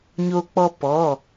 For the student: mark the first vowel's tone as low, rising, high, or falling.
high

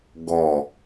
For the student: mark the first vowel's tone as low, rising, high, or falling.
low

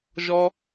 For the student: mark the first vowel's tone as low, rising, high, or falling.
high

